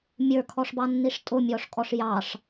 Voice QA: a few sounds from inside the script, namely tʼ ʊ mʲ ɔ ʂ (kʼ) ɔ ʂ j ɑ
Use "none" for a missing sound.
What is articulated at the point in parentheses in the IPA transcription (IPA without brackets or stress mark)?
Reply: kʼ